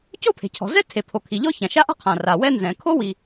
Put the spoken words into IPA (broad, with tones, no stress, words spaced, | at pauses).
co˥pʰe̤˩cʰɔ̤˩ zɛ˥tʰe˩ pʰo˩ kʰi˩ ʎɔ˥çã˩ʃa˥ʔa̤˥ qʰã˩ra˩ wɛ˥nzɛ̃˩ kʰo˥wi˩